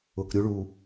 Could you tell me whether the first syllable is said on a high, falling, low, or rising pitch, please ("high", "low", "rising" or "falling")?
low